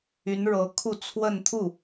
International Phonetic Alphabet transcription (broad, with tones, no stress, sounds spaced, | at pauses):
y˧˥ n ɻ ɤ˧˥ kʰ u˥˧ t͡sʰ w ə˥˧ n t̪ʰ u˥˩